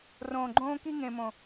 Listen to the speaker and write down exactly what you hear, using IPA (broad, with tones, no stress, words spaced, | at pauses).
rõː˨ɡ͡ǃõː˦ ki˦ŋẽ˨mõ˨